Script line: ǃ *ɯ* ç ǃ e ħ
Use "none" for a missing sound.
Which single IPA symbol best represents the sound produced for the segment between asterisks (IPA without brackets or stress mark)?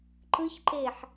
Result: ɯ